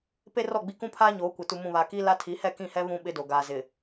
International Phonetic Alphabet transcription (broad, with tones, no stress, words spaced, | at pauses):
pe˦rɔ˦˨ɡ͡bi˦ kũ˦pʰaː˦ ɲoː˨˦kʷɪ˨ tu˨mũ˨βaː˨ ki˦la˦ tʰi˨˦hɛ˦˨kĩ˦˨hɛ˦ βũ˦ ɓɪ˦do˨ɡaː˨zɪ˨